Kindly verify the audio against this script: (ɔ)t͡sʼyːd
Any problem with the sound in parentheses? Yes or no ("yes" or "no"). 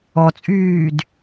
no